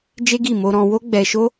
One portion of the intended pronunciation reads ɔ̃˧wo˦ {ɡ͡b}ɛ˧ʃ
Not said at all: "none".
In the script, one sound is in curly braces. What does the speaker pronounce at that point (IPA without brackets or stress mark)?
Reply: ɡ͡b